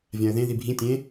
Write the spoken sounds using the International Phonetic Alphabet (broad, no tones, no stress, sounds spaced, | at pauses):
vʲ ã ə̯ ð ẽ ð i bʱ ĩ tʲ ẽ